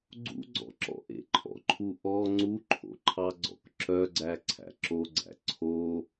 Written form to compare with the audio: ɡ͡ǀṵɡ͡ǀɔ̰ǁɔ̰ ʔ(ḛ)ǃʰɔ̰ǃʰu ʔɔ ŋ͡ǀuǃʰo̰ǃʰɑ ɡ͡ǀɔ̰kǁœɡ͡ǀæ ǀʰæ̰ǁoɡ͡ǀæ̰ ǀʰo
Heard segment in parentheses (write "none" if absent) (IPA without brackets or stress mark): ḛ